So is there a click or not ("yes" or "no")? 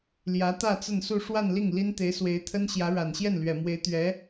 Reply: no